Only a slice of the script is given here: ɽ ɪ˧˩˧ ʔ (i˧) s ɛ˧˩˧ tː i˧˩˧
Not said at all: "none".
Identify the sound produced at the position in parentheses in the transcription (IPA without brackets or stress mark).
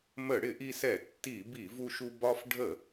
i˧